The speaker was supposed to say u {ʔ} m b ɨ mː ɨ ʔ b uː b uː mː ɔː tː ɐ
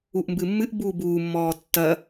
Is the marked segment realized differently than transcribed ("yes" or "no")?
no